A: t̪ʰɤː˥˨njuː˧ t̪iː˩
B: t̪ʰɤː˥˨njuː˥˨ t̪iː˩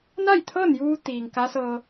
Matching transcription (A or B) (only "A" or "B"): A